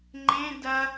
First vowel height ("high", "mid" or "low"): mid